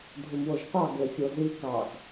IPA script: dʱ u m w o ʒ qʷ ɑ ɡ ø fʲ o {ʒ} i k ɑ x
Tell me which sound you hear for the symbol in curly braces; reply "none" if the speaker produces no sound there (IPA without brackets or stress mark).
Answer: z